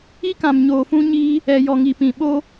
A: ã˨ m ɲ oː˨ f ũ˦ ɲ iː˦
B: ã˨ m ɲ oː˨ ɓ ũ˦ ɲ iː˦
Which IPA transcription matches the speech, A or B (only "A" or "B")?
A